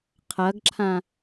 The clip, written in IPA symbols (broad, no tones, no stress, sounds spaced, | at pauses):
qʰ ɐ ɡ ǁʰ ã